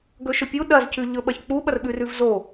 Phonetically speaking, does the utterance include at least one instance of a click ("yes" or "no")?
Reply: no